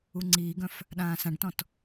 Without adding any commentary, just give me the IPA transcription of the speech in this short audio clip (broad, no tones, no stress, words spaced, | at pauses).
uŋ͡ǀiːɡœ̃f | ɗãːsãɖtɔ̃t